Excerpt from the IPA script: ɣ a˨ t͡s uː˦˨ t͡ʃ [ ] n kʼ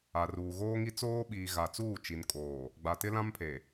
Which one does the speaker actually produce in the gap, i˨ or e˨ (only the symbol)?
i˨